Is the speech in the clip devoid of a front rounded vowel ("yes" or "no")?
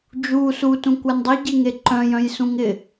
no